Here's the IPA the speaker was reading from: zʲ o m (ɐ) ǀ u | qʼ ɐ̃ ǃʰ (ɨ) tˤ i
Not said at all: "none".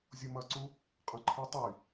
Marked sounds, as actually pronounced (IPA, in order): ɐ, i

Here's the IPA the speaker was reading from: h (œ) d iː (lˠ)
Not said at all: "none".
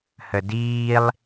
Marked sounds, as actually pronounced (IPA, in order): ə, lˠ

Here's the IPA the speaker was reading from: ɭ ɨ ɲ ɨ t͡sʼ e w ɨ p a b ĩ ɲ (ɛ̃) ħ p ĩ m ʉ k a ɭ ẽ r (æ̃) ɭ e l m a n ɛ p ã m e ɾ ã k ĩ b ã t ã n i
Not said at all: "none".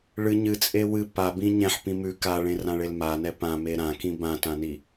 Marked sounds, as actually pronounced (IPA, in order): ɛ̃, ã

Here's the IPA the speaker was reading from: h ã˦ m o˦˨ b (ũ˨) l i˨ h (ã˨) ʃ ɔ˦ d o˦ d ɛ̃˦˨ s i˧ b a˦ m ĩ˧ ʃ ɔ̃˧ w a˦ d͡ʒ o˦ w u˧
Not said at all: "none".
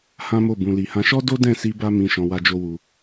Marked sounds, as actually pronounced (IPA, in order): ũ˨, ã˧

